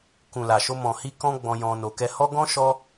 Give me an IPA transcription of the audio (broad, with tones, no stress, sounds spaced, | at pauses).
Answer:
k ũ˨ l a˨ ʃ o˧ m ɔ̃˨ h i˧ k ɔ̃˦ ɡ͡b ɔ̃˧ j ɔ̃˧ n o˧ k ɛ˧ h ɔ˦ ɡ ɔ̃˦ ʃ ɔ˦